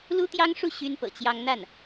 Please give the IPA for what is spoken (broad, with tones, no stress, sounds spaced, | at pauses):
l u˥ t̪ j ɑ˥ ŋ ʂ u˥˩ ɕ y˥ n p ɤ̰˨˩ t͡ɕ j ɑ˥ ŋ n̪ a˥˩ n